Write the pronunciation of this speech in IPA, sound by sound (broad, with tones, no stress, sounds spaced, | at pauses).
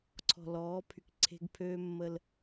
ǀʰ ɔ̤˨ l ɔː˨˦ pʰ y˨ k ǀʰ e̤˦ ɡ pʰ øː˦ mː ə˦ l